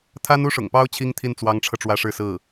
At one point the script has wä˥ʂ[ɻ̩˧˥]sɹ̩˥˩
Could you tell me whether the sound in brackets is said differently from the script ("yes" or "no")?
yes